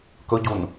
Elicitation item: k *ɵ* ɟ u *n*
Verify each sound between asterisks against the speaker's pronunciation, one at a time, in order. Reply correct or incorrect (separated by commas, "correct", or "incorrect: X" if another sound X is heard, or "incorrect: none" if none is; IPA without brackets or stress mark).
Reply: correct, correct